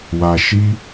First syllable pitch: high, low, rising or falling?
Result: low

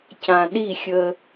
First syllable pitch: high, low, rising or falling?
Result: low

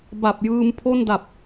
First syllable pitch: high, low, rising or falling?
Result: low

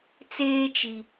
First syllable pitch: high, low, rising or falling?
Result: high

